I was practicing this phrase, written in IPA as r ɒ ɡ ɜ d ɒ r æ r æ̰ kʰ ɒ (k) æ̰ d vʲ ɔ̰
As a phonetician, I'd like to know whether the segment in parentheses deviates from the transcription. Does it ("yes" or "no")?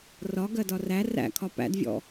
yes